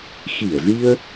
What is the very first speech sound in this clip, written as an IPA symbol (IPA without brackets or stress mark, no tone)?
x